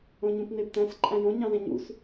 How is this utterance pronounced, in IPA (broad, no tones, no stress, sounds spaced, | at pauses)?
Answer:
õ ɲ ũ p n e b t̪ æ̃ s ǃʼ æ̃ j õ ɲ ɑ̃ z ẽ ɲ ṵ s